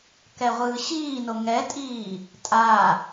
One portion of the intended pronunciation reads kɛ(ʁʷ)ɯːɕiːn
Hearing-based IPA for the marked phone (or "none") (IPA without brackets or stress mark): ʁʷ